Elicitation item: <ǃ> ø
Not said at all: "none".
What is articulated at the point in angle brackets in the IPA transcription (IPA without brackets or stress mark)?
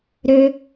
ɾ